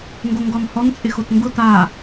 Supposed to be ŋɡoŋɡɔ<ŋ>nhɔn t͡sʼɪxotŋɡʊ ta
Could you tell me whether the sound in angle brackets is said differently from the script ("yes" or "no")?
yes